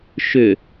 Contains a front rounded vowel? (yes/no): yes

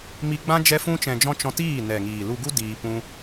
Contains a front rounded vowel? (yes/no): no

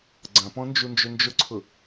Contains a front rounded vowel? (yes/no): yes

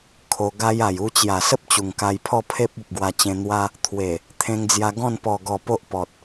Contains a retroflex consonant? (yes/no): no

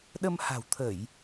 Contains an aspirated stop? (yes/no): yes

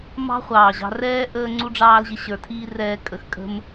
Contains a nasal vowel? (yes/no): no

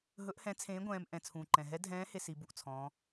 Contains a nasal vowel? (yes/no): yes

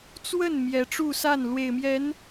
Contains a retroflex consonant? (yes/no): yes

